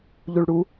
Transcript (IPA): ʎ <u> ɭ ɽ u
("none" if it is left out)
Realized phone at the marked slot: u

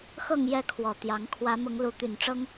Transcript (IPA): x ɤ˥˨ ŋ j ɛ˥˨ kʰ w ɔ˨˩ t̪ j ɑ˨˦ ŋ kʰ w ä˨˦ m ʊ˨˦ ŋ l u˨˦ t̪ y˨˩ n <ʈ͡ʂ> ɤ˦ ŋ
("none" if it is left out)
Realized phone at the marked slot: ʈ͡ʂ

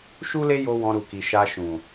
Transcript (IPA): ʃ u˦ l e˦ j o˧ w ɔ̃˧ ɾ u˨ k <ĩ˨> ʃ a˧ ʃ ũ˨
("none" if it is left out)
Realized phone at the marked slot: i˨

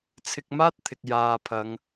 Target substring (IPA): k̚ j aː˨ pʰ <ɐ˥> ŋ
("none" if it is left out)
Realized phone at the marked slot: ɐ˨˧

